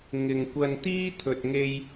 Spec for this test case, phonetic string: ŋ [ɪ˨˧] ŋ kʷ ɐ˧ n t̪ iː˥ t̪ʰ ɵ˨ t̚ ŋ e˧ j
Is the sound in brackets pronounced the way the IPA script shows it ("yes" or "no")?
no